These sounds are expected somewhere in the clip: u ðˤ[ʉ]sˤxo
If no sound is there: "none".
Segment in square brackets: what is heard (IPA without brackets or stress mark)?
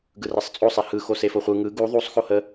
u